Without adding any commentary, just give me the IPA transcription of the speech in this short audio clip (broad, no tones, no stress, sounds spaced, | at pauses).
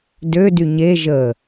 d ø d y ɲ e ʒ ə